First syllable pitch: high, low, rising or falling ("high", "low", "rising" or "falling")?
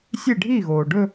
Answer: falling